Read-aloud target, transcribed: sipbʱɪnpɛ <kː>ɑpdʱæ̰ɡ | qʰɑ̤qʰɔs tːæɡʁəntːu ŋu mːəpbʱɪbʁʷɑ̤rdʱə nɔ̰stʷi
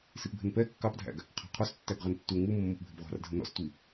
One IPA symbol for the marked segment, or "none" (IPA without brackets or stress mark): kː